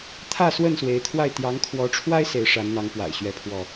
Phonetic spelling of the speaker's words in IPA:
t̪ʰ ä˥˨ s w ə˥˨ n s w e˨˦ ɪ̯ t̪ʰ w a˥˨ ɪ̯ t̪ j ɑ˨˦ ŋ kʰ w ɔ˨˦ ʈ͡ʂʰ w a˦ ɪ̯ s e˨˦ ɪ̯ ʂ a˨˦ n n̪ ɑ˨˦ ŋ p w a̰˨˩ ɪ̯ ɕ ɥ ɛ˥˨ pʰ w ɔ˥˨

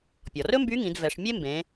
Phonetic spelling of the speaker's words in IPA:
pʲ ɔ˩ r ɵ˥ m b y˧˥ ŋ ĩ˩˧ d v ɛ˩˧ ʂ mʲ e˥ m b ẽ˩˧

